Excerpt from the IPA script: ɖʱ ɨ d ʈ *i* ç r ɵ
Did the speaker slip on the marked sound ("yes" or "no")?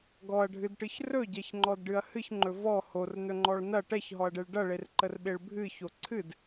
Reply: yes